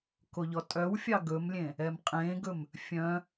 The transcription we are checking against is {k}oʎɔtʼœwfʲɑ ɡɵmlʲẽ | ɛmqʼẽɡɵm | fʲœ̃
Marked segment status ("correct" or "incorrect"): correct